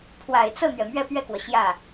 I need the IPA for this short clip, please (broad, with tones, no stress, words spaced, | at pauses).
pʰwa˨˩ɪ̯t͡sɤ˥˩n̪ɥɛ˩ mɥɛ˥˧pɥɛ˥˩kwɔ˩ ɕjä˥˩